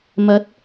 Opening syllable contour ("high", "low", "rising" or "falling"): rising